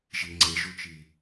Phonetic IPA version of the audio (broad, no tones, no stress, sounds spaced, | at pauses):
ʒ i ŋ͡ǀ e ʒ u t͡ʃ i